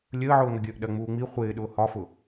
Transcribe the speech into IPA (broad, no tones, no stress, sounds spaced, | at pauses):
lʲ əː ʕ ʊː ŋ ə ɡʲ əː ʔ ɗ ɜ ŋ͡m uː ŋ͡m i χʷ ɪː ɗ ʊː h ɒ f ʊ